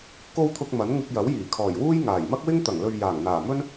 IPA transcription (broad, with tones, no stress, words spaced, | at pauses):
ko˧wt̪ʰʊ˨k̚ mɐ˨˥n ŋɪ˧k̚jɐ˨˥w jiː˨˩kʰɔː˨˩jwuː˥j ŋaː˨˩jmɐ˥k̚wɪ˥ŋ t̪ɐ˨˩ŋlɵ˨ɥ jaː˨˩ŋ n̪aː˨˩ mɵ˥n